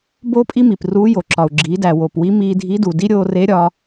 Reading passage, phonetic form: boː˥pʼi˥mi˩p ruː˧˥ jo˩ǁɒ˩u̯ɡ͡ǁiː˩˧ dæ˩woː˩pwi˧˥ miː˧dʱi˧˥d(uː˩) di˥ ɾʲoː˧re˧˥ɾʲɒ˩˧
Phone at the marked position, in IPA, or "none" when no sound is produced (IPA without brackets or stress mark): u˩